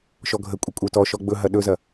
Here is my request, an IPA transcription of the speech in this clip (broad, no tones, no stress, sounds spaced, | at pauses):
ʃ ɔ ɡʱ ə kʷʼ ə kʷʼ ə˞ t ɔ ʃ ɔ ɡ͡b ɵ ɦ ɐ ɗ ɵ z ɐ